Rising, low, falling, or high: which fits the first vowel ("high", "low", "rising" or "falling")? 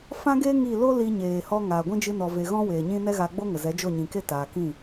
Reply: high